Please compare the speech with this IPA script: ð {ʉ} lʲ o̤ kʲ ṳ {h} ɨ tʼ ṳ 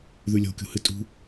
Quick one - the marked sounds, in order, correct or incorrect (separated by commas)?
correct, correct